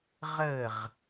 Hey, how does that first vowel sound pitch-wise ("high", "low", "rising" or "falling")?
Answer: falling